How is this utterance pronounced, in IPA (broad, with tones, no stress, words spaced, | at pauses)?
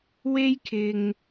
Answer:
we˥jkʰɪ˨ŋ